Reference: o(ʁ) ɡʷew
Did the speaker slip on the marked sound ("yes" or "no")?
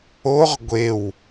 no